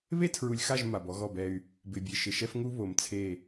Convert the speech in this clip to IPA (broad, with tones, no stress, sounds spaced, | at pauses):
β e˦ tʰ ɹ u˨ lʲ x a˦˨ ʒ m a˨ b ɔ˦ ɣ ɔ˦˨ b ɛ˦ y̯ | b ɪ˨ bʲ e˨ ʃ ɪ˨ ʃ ɛ˦ f ŋ u˦ β o˨ m t͡sʰ e˦˨